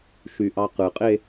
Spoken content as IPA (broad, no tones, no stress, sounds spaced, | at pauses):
ʃ y ʔ ɑ q ɯ qʼ e